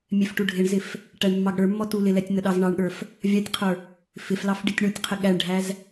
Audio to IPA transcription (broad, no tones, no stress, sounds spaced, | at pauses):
mʲ ɛ f ʈ u ɖʱ ɪ ɳ z ɪ f | ʈ æ ɳ mː ɑ ɡ ɽ ə˞ mː ɔ t u l ɪ l ɛ tʲ n ə ɗ ɑ z ɳ ɑ ɳ ɠ ə˞ f | vʲ ɑ tʲ qʰ ə˞ | f ɪ f l ɑ f ɖ i tʲ ɳ u tʲ qʰ ɪ ɠ æ ɳ ɖʱ æ z